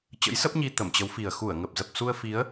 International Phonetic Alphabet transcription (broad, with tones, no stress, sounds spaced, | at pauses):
t͡ɕ ə̰˧˥ j s ə˦˥ p̚ ɲ i˧ t̪ ə˧˩ m t͡ɕ ə˨˦ w f i˨˩ ə̯ x u˧˩ ə̯ ŋ ə˨˩ p̚ z ə˨˩ p̚ s u˧ ə̯ f i˨˦ ə̯